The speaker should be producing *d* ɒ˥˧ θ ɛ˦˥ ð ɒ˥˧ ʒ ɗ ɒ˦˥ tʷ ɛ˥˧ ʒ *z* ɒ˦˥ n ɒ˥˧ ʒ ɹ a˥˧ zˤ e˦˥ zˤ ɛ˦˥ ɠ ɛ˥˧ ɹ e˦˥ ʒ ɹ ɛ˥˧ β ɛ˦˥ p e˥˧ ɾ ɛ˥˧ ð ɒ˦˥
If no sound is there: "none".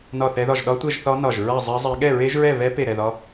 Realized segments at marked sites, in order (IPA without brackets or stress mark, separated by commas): n, θ